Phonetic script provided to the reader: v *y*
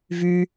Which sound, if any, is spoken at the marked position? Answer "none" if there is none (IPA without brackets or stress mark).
y